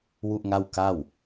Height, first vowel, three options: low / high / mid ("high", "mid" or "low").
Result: high